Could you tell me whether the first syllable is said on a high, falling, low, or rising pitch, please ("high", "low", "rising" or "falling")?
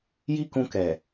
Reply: high